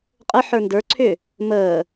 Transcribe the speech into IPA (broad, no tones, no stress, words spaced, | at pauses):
qʼəħə˞ ndə˞ ǀʰʏ | məː